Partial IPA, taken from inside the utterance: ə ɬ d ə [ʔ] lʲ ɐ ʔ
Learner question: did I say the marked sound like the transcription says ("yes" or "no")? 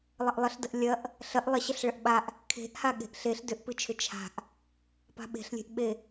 yes